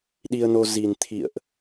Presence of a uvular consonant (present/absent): absent